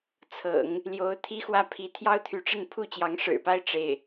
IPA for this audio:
t͡sʰ ɤ̰˨˩˦ ŋ | l j o˧˥ ʊ̯ t̪ʰ i˥ x w ä˥˩ pʰ i˧˥ t̪ʰ j ɑ˥ ʊ̯ t̪ʰ y˧˥ ʈ͡ʂ ə˥˧ n pʰ u˥˩ t͡ɕ j ɑ˧˥ ŋ ʂ ɻ̩˨˩ p a˥ ɪ̯ ʈ͡ʂ e˥˩ ɪ̯

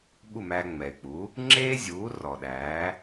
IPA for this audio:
ɓ u˥˩ m æː˧ ŋ͡m ɛ˩ y̯ k͡p u˩˥ | ŋ͡ǁ eː˥ zʲ uː˩˥ r ɔː˩ ɗ æː˩˥

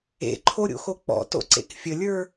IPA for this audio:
ḛ ǃʰ o ɾʲ o̰ x o k͡p ɔ̰ t o̰ ǀ ḛ k fʲ ə lʲ ə˞

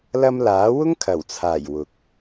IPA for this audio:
l ɐ˧ m l aː˨˥ w ʊ˥ ŋ kʰ ɐ˨˩ w t͡sʰ aː˨˩ j w ʊ˨ k̚

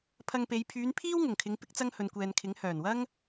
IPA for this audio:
pʰ ɐ˧ ŋ p e˨˧ j pʰ yː˨˧ n pʰ iː˥ w ŋ ʊ˨˩ ŋ kʰ ɪ˨˧ ŋ p ɪ˥ k̚ t͡s ɐ˥ ŋ h ɵ˨ n kʷ ɛː˨ n kʰ ɪ˨˥ ŋ h œː˨˩ n w ɐ˥ ŋ

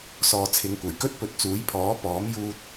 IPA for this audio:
s ɔː˨ t͡sʰ ɪ˨˧ ŋ kʷ ɐ˨˩ j k ɵ˥ t̚ p ɵ˨˥ t̚ t͡s uː˨˥ j pʰ ɔː˨˥ p ɔː˨˥ m j uː˧ t̚

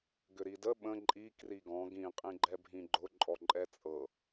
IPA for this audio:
ɡ ʏ ɾ i d ə ɓ ə̃ ǃʼ i k r i ɡ ɔ̃ ɡ ĩ qʼ ĩ ɡ͡ǃ ɛ bʱ ĩ ɡ͡ǃ ʊ ǃʼ ɔ ǃʼ ɛ t͡sʼ ɤ

